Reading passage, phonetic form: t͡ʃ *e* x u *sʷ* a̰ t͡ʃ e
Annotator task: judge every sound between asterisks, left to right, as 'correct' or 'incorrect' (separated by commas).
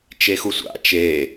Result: correct, correct